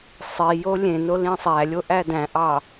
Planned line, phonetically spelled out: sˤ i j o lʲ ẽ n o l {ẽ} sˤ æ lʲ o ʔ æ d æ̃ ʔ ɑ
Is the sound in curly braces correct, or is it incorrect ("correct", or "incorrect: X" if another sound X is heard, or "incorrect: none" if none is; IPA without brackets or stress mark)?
incorrect: ĩ